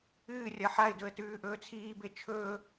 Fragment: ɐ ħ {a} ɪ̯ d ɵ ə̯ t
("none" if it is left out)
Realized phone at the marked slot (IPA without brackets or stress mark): a